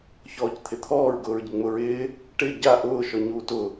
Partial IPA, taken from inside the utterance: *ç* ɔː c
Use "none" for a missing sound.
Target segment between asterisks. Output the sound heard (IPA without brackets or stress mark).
ç